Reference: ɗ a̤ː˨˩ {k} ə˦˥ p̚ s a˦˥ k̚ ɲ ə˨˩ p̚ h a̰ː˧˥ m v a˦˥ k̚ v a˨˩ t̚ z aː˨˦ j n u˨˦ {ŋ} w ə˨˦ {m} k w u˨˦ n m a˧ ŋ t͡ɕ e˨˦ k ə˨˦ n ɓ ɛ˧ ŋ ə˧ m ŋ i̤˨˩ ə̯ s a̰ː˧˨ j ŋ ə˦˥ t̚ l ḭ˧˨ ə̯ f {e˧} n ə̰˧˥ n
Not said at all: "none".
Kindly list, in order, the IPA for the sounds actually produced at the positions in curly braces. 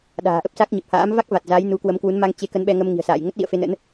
ʔ, k, m, e˧

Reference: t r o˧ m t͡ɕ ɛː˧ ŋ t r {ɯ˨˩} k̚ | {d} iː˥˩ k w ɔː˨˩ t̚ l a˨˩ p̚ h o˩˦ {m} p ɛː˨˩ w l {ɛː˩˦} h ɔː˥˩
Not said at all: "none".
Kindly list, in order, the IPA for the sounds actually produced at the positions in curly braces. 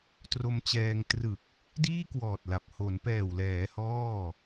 ɯ˨˩, d, n, ɛː˩˦

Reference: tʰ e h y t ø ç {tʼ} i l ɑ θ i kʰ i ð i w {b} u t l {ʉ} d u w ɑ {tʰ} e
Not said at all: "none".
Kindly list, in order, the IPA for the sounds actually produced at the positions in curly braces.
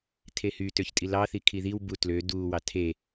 tʼ, b, ø, tʰ

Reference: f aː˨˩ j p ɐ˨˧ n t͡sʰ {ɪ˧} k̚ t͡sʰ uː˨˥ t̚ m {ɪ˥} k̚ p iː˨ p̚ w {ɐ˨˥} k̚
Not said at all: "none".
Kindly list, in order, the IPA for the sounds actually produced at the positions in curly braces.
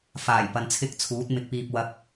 ɪ˥, ɪ˨, ɐ˨˥

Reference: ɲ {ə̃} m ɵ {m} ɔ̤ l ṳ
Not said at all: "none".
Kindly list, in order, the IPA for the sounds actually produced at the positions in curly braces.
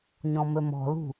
ɔ̃, m

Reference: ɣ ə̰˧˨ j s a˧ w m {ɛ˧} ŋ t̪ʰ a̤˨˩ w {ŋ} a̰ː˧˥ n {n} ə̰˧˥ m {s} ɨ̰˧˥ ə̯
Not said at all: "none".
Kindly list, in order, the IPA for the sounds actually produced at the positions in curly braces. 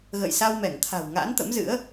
ɛ˧˩, ŋ, t̪, z

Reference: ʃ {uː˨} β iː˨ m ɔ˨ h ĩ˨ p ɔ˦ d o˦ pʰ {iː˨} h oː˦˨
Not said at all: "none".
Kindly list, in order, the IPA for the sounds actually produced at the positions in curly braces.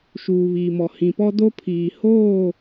uː˨, iː˨

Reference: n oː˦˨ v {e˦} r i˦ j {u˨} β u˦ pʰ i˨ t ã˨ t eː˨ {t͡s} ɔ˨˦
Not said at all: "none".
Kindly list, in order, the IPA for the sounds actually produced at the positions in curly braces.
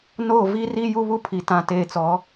i˦, u˦, t͡s

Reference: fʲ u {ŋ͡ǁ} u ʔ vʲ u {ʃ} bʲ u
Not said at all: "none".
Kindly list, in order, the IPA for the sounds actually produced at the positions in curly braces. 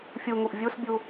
ŋ, s

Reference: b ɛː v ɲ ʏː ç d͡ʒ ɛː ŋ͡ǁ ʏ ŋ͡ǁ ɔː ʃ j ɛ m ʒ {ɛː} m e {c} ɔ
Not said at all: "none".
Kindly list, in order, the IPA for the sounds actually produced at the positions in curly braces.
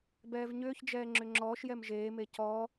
eː, c

